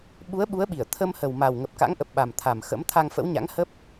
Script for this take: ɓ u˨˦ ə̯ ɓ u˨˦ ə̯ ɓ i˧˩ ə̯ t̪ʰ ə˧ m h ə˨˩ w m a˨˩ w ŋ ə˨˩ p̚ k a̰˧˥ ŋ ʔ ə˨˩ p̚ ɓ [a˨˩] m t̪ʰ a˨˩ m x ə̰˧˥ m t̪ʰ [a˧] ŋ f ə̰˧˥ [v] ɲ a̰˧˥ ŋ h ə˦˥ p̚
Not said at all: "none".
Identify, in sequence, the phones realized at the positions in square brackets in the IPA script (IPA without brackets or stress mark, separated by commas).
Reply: a˨˩, a˧, w